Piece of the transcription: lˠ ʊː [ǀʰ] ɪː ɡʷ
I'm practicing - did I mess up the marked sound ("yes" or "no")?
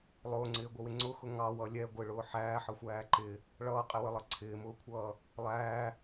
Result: yes